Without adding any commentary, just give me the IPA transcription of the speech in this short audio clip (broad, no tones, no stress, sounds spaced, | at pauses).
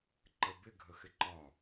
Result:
ǃ ə b ɪ ɡʱ ə x ɪ ǃ ɒ